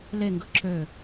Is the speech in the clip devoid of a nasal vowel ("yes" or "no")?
yes